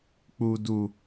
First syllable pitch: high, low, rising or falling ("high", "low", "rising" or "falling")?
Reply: low